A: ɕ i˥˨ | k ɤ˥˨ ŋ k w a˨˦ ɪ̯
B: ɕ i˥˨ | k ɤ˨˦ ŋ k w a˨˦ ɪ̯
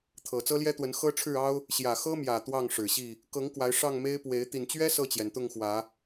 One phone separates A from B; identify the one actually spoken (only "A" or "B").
B